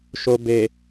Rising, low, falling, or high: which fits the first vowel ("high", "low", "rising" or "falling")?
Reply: low